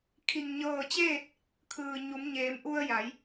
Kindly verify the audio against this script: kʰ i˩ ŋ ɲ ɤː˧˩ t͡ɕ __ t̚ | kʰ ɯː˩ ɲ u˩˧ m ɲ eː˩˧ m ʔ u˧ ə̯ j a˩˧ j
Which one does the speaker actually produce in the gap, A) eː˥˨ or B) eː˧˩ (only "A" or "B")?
A